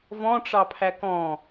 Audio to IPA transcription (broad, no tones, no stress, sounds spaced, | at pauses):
v ɔ̃ ʈ͡ʂ ɑ pʰ æ k ɔ̃